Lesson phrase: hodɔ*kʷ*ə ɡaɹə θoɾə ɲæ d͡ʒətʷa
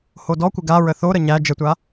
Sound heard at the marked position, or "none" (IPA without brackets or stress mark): kʷ